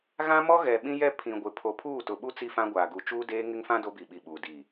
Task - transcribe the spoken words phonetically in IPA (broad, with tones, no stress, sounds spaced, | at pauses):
ɣ ã˦ m ɔ˦ ɣ ɛ˨ ɓ ĩ˦ j ɛ˦ pʰ ĩ˨ ɡʷ ɪ˨ pʰ o˨ pʰ uː˦˨ t ʊ˨ ɓ u˦ t͡s i˦ f ã˦ ɡʷ aː˨ ɡ u˨ t͡ʃ uː˦ d eː˦ ŋ ɪ˦ ŋ f ã˦ d o˦ b i˨ ɓ i˨ ɓ uː˨ d i˦˨